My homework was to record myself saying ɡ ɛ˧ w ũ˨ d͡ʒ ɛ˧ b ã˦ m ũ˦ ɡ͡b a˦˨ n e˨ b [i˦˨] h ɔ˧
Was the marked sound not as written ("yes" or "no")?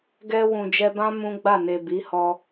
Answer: yes